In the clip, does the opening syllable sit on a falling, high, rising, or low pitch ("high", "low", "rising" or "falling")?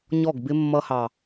falling